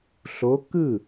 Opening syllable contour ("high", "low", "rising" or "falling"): rising